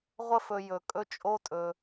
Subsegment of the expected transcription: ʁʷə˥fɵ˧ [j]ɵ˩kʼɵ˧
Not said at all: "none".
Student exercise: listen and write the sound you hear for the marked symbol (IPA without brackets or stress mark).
j